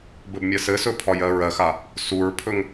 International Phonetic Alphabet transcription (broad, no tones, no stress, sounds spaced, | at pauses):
b ɘ b mʲ ɜ s ɘ s ɵ pʰ ɒ j ɜ ɹ ɜ x a | s u ɹ pʰ ɵ ŋ